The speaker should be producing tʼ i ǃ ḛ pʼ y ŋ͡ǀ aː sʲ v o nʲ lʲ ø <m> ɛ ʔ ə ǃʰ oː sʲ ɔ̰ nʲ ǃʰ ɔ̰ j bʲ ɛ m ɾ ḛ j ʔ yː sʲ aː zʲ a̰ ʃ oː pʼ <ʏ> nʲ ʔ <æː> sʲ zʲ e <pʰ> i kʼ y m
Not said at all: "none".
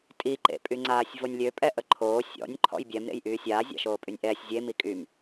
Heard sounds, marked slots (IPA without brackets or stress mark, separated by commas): pʼ, y, ɛː, m